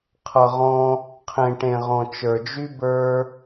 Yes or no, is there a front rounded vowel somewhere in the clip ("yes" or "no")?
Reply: yes